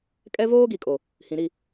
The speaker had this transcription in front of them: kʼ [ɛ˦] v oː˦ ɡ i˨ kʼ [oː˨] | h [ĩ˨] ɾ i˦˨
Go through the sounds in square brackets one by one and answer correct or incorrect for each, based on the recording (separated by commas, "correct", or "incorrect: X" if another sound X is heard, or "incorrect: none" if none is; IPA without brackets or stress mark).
correct, incorrect: o˨, correct